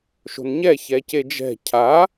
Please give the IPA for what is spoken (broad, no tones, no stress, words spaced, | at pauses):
ʃo̤nɲɛ çɛced͡ʒɛ̤ cʰa